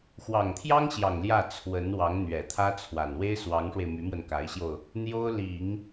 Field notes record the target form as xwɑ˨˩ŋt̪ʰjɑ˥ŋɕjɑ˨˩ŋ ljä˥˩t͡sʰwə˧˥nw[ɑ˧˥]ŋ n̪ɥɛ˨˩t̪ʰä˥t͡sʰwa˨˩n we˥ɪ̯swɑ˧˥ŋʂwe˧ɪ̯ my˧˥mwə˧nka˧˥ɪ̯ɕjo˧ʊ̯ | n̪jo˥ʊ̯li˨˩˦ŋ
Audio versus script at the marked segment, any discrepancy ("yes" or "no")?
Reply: no